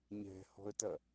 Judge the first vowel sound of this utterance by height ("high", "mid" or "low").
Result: mid